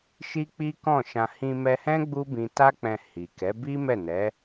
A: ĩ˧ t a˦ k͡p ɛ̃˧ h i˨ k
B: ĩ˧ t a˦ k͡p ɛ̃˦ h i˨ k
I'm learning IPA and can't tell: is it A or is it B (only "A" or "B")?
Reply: A